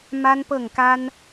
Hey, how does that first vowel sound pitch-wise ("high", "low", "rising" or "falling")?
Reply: high